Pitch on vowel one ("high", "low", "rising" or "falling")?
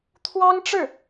high